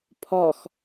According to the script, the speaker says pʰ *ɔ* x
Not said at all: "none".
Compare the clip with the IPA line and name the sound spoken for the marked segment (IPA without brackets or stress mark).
ɔ